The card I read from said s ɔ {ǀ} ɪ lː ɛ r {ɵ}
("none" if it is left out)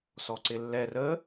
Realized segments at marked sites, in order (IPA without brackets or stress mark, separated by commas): ǀ, ə